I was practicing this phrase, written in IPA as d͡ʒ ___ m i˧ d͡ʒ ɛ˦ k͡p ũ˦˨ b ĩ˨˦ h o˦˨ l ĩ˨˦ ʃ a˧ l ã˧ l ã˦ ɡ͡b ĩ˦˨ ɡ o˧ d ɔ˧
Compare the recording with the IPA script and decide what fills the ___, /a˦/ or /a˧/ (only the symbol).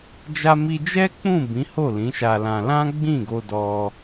a˧